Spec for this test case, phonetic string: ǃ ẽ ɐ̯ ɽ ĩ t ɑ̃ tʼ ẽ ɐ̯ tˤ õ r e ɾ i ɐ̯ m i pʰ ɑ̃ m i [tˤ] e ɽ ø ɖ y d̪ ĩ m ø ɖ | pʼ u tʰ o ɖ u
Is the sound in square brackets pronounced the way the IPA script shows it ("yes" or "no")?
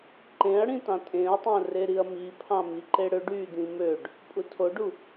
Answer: no